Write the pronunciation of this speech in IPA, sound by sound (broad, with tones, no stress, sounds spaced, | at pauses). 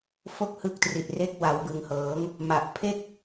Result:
f o˥˩ k̚ h ɯ˥˩ k̚ t r i˨˩ t̚ r e˦˥ k̚ w a˩˦ w b ɯ˨˩ ŋ h ɤː˩˦ ŋ | m a˨˩ ʔ pʰ e˥˩ k̚